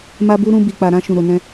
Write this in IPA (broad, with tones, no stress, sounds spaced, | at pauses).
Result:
m a˧ b u˧ ɾ ũ˧ b i˨ k͡p a˨ ɾ ã˧ ʃ ũ˨ ɾ o˨ n ɛ̃˧